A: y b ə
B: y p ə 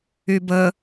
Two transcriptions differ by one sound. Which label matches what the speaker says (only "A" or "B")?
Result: A